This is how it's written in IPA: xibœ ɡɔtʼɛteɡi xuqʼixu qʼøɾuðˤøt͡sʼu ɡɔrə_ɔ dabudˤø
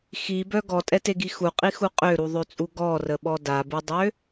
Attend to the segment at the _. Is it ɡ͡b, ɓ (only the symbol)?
ɓ